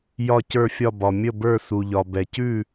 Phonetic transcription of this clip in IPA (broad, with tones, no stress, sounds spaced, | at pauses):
j ɒ˥˧ c ə˞˥˧ fʲ ɒ˥˧ b ɒ˧ mʲ ə˥˧ b ə˞˥˧ s u˧ ʎ ɒ˧ b ɛ˧ c ʉ˥˧